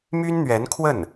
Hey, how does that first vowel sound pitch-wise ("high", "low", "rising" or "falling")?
high